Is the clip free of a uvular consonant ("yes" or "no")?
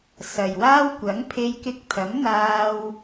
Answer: yes